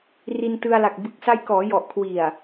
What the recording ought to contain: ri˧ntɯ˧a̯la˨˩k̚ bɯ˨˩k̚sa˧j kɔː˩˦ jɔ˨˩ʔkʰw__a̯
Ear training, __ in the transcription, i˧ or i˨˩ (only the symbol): i˨˩